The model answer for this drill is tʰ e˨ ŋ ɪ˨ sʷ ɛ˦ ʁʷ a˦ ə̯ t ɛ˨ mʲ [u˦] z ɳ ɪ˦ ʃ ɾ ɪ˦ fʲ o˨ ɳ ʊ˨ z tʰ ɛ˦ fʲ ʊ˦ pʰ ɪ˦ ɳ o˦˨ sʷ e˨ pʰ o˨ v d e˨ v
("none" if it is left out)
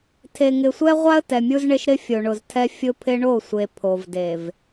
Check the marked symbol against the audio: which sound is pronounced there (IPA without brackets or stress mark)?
u˦